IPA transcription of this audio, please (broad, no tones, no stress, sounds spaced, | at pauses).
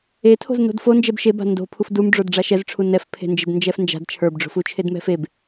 e tʰ o̤ z n o̤ d f o n d͡ʒ ɛ b ʃ e b a̤ n d o̤ pʰ u f d u m ɖ͡ʐ o d ɖ͡ʐ a ʃ ɛ z ʈ͡ʂʰ u n ɛ f pʰ e̤ n d͡ʒ e d n d͡ʒ ɛ f n d͡ʒ a̤ d t͡ʃʰ ə˞ b ɖ͡ʐ o̤ f u t͡ʃʰ e d m ɛ̤ f e b